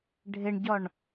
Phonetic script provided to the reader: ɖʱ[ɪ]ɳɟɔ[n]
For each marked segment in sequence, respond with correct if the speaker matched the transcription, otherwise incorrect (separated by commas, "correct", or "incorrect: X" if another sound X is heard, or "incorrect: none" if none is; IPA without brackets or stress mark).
correct, incorrect: ɳ